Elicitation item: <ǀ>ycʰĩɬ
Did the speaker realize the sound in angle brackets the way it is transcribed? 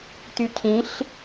no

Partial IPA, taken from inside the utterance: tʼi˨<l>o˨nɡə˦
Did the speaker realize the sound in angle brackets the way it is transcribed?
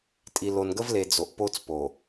yes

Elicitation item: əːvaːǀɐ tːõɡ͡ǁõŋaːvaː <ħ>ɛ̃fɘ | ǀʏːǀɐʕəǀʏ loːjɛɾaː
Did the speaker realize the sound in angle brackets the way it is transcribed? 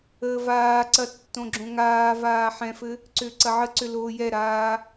yes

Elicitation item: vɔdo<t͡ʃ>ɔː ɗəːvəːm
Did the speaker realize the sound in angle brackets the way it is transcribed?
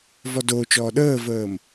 yes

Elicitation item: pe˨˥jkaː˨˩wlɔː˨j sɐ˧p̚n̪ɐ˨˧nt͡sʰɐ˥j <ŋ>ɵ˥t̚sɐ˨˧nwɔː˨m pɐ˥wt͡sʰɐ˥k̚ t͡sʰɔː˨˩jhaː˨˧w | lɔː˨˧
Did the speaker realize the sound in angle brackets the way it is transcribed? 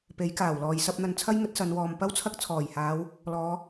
yes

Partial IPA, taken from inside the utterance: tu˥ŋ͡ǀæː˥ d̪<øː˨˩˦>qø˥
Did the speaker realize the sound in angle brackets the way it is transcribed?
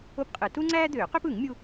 yes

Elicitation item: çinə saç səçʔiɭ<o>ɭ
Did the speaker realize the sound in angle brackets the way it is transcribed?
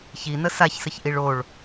yes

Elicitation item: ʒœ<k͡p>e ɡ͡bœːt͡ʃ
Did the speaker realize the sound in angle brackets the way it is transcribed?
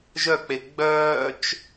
yes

